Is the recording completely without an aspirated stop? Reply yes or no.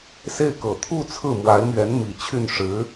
no